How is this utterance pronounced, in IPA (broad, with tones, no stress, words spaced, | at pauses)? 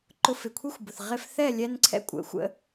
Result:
ǃʊ˧fɪ˨kʷʰi˦xʷbʊ˨θ ʁɪ˧f θɛ˦˨lʲɛ˧nǀʰɛ̰˧ kʷʼə̰˨˦xʷə̰˦